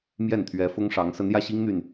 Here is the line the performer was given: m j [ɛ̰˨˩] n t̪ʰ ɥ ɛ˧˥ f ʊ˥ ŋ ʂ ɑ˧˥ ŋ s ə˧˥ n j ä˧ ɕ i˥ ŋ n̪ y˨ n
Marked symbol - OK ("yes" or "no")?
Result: no